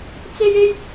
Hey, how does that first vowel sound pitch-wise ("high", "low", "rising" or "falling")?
high